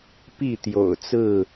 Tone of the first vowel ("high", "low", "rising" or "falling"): falling